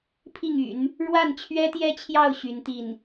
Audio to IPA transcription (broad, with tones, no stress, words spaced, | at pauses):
pʰi˥˩ŋy̰˨˩˦n | ɻwa˥˩nt͡ɕʰɥɛ˥t̪jɛ˥t͡ɕʰjɑ˥˩ʊ̯ ɕy˧˥nt̪i˥˩n